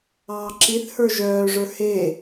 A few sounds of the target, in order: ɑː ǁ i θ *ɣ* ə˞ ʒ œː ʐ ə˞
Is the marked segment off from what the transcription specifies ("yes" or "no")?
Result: yes